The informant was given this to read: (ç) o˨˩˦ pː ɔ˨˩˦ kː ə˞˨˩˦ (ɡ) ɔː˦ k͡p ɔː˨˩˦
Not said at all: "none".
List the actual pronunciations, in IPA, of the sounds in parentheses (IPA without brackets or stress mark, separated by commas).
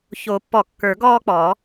ç, ɡ